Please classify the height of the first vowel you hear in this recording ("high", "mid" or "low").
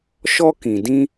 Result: mid